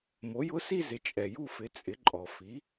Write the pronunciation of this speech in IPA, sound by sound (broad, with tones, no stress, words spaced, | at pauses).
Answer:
mo˩˥jʊ˦˥si˥˧zɪ˩˥ t͡ʃʼɛ˩ju˥˧fɪ˩˥ t͡sʼɪ˩˥ǃʼɔ˩ fi˩˥